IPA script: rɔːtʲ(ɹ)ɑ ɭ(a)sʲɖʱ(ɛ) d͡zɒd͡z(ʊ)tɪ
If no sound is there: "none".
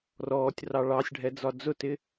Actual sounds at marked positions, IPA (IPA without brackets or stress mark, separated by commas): r, ɑ, ɛ, ʊ